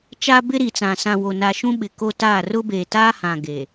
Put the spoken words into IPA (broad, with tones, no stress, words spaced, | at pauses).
t͡ʃa˦bɪ˦ɾi˨t͡sã˨ sã˨wo˨na˨ ʃũ˦ɓɪ˨ko˦taː˦˨ rʊ˦beː˨taː˦hã˨ ɡeː˨